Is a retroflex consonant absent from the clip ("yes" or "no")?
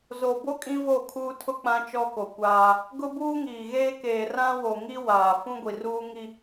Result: yes